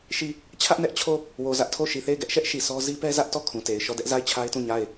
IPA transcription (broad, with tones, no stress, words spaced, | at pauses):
ʃi˦˨ | t͡ɕʰä˦ʔnɛ˦ʔt͡ɕʰo˦˨ | wo˨zä˦ʔtʰo˦˨ ʃi˨θe˦˨ɪ̯ɡɛ˦ʔʃɛ˦ʔ ʃi˨sʰɔ˦ zi˦pɛ˦zä˦ʔtɔ˦˨ kʰũ˨te˨ɪ̯ ʃɔ˦˨dɛ˦ʔ za˦˨ɪ̯t͡ɕʰa˦ɪ̯tũ˦˨ ɲa˦˨ɪ̯